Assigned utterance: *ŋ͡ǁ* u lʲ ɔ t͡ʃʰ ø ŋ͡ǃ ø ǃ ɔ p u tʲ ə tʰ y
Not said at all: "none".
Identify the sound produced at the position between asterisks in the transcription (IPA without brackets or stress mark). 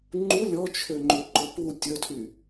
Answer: ŋ͡ǃ